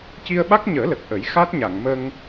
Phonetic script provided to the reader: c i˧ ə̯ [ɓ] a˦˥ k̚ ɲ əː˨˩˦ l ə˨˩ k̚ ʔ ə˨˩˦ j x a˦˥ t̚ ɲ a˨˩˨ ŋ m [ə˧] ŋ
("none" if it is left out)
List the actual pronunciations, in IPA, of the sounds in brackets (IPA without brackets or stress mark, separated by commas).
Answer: ɓ, ə˧